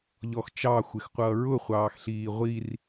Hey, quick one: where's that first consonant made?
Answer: palate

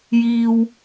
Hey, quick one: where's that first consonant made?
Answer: palate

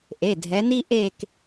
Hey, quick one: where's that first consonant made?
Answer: throat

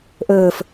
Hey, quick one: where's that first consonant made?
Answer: throat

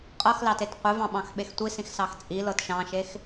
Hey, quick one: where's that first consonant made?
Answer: uvula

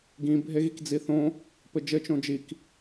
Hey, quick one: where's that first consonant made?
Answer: velum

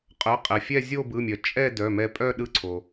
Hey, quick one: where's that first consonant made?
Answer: uvula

